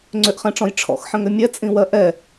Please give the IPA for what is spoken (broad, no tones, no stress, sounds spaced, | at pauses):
ŋ͡ǀ ʏ ʔ χ ɛ̃ ʈ͡ʂ ɔ̃ j ʈ͡ʂʰ ɔ̰ x ħ ə̃ ŋ ʏ mʲ ɛ t͡sʼ ĩ w ɜ ʔ ɛ